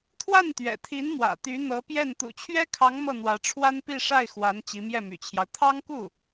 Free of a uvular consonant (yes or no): yes